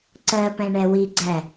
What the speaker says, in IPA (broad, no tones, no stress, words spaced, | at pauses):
ǀɜpɛ̃ ɳɛwiɡ͡ǀæ